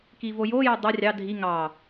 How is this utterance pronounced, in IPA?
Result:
k i v o j o j o dˤ ø rʲ ɑ dʱ i ŋ ɑ

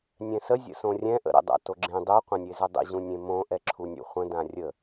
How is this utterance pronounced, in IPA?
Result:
nʲ ɛ̃ s ə zʲ ə̰ s õ rʲ ɛ̃ ʔ ə̰ ɾ ə̰ dˤ a̰ t o ɡ͡ǁ ẽ dˤ u qʷ ɛ̃ nʲ e z ʏ dˤ ə̰ ʑ ũ nʲ ẽ m õ ʔ ɛ ǁʰ u nʲ ṵ χʷ ə̃ d ã rʲ ə

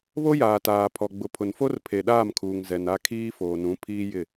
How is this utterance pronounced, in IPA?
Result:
β o˦ j aː˨ t aː˨ pʰ ɔ˨ ɡ͡b ʊ˨ pʰ ʊ˨ n f o˦ r pʰ e˨ ɗ aː˦˨ m kʰ uː˨ ŋ z ɛ˨ n a˦ kʰ iː˦ f oː˨ n ũ˨˦ pʰ iː˦ j ɪ˦˨

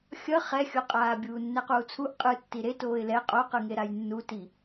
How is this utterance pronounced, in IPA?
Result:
xʲ ʌ χ ɛ xʲ o qʼ aː bʲ uː nː ɛ q uː t͡sʰ u ʔ qʼ ɯ tː i ɾ e t oː ɪ̯ l ɛ qʼ o q ɯ ŋ e ɾ a j nː u t i

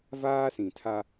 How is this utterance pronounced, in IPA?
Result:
v aː˦ s ĩ˨ tʰ a˦

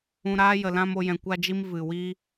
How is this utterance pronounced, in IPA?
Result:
ũ˧ ɾ aː˦ j ə˨ l ã˦ m o˧ j ɛ̃˧ kʷ a˦ d͡ʒ i˦ m v ɨ˨ w i˦

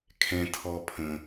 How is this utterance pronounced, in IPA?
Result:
kʰ ɛ̃˨ tʰ ɔ˨ pʰ ə̃˩

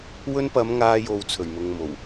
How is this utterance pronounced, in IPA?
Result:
w ɵ˥ n p ɐ˨˧ m ŋ aː˧ j o˨ w t͡sʰ ɵ˨˩ ɥ m ʊ˨ ŋ m o˨˩ w

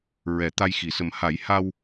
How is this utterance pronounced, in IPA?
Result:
ɹ ɛ˨˩˦ t̪ a˧ j x i˨˩˦ s ə˨˩ m h a˨˩˦ j h a˧ w

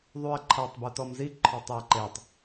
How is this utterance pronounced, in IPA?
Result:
ðˤ u ɐ̯ ǃʰ a tˤ b u t ɔ m z i ǃʰ ɔ tˤ j e ǃ e tˤ

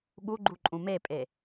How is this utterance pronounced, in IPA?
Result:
ɠ u ɡ͡ǃ u ǃʼ ũ m e pʼ e

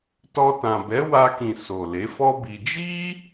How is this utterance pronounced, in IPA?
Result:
t ɔ˧ t ã˨ b ɛ˨˦ w a˧ k ĩ˨ s o˨ l e˨˦ f ɔ˦ b i˧ d͡ʒ i˦

